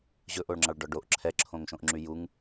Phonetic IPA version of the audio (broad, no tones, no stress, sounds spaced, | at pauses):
ʑ ɵ ʔ o ɭ ŋ͡ǁ ɑ ɭ ɖ ɔ ɖ o ʔ ǁʰ ɛ ǁʰ õ ŋ ʃ õ ʔ ŋ͡ǁ y j u ŋ